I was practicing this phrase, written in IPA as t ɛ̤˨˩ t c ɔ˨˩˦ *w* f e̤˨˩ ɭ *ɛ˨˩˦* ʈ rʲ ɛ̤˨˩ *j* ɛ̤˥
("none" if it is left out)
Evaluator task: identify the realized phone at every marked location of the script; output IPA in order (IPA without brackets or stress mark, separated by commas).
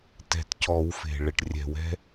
w, ɛ˨˩, w